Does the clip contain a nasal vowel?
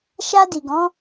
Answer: yes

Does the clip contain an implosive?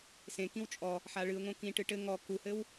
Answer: no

